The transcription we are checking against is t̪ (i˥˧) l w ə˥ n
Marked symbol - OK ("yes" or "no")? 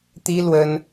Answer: no